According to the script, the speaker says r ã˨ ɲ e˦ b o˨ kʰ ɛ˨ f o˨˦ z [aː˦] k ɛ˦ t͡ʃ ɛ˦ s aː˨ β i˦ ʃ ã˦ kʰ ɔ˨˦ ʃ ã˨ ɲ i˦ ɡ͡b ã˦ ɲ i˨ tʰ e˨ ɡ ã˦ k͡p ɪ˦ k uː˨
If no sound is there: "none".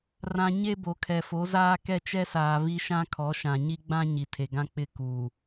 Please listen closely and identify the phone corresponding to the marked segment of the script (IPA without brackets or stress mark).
aː˦